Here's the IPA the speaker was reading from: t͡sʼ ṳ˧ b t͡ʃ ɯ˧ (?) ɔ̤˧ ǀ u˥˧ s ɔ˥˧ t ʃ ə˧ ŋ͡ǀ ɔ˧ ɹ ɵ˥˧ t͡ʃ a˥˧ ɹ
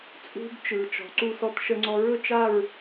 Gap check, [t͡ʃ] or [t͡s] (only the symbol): t͡ʃ